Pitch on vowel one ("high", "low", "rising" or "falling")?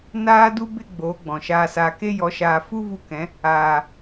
high